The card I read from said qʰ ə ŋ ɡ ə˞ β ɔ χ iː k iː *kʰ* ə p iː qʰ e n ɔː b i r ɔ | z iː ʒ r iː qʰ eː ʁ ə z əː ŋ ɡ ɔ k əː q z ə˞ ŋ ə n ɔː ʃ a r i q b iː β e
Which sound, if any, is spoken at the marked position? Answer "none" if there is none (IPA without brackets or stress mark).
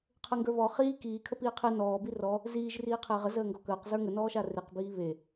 kʰ